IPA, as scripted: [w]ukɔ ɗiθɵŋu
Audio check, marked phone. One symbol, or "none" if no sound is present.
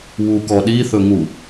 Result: w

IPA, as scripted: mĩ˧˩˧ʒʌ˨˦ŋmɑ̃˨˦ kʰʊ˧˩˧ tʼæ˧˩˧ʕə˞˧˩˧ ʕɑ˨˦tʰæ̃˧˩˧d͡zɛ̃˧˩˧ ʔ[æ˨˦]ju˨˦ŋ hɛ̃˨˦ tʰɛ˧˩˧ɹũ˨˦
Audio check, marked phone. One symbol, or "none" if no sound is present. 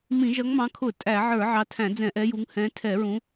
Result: ɛ˨˦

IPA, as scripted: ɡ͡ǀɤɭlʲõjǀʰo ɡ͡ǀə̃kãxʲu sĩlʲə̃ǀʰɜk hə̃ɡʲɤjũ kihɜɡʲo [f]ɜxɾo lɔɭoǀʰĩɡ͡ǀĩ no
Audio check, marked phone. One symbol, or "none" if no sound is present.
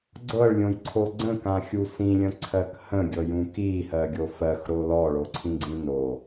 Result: f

